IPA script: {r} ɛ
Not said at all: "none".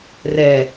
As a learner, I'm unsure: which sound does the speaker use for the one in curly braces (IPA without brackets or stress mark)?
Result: r